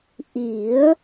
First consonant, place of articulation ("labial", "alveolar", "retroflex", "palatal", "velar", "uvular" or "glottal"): glottal